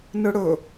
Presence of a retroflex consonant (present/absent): present